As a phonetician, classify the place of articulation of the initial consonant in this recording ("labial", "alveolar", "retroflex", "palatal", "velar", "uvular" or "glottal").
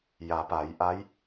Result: palatal